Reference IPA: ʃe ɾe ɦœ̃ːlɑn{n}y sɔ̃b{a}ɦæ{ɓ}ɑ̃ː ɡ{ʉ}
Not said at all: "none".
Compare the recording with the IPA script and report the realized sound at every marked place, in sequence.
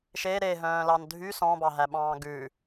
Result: dʱ, ɑ, ɓ, ʉ

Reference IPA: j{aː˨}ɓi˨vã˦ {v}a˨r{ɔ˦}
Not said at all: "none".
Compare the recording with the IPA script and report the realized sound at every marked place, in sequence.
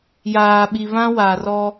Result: aː˨, w, ɔ˦

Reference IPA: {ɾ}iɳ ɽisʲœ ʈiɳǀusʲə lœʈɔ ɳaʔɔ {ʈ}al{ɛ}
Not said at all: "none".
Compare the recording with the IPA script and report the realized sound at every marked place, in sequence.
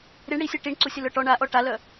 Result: ɾ, ʈ, œ

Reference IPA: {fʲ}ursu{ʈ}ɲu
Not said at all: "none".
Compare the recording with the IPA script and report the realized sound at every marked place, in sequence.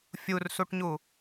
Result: fʲ, ʈ

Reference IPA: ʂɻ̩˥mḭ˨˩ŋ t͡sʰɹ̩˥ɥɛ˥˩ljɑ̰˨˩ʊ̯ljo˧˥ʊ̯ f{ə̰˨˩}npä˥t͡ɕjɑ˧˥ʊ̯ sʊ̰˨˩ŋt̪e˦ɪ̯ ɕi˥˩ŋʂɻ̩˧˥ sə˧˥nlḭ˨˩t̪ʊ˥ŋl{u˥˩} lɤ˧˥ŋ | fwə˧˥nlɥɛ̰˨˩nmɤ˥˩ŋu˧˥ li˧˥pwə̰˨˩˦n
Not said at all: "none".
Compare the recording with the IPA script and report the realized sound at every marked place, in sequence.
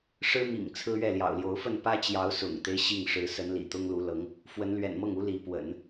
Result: ə˥˩, u˧˥

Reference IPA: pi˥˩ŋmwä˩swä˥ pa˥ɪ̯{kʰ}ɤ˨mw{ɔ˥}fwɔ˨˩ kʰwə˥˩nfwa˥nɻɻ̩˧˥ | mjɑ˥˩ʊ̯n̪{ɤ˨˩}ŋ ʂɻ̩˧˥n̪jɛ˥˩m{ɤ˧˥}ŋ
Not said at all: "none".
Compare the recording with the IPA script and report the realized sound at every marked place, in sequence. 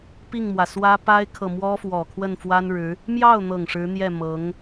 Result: kʰ, ɔ˥, ɤ˨˩, ɤ˧˥

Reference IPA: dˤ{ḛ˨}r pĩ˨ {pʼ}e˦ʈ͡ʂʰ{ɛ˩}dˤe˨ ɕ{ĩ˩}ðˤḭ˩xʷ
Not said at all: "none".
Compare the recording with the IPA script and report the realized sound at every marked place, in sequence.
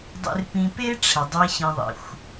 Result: ḛ˨, p, ɛ˩, ĩ˨

